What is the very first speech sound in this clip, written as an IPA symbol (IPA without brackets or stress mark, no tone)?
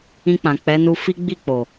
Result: ĩ